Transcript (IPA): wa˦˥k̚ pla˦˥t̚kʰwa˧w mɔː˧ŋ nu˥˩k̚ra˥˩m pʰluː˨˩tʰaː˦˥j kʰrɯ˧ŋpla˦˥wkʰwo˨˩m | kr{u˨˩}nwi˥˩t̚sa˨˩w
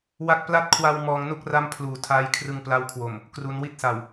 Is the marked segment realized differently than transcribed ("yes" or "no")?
yes